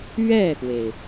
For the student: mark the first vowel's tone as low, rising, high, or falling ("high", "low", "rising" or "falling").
falling